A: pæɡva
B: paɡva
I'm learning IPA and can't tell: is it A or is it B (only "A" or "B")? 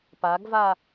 B